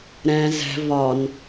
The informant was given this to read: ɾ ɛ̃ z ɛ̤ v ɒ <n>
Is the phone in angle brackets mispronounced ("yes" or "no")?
no